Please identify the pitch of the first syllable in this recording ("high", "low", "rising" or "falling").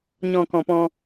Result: low